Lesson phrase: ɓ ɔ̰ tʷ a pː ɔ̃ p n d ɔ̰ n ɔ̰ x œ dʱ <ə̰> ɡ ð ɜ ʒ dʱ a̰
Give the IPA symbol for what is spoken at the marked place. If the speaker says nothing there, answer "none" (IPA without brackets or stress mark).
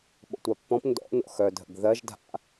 ə̰